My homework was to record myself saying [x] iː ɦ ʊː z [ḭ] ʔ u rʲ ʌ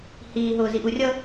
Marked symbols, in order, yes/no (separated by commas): no, no